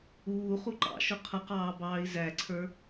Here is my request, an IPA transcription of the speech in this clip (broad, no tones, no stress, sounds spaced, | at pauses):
uː χ u ǃ ɑ̰ ʃ ʊ qʰ ʌ q ɑː b ɑː i̯ z æ ǀʰ ə˞